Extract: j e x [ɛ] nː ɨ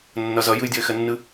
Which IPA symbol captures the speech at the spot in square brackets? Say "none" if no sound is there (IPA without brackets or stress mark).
ɛ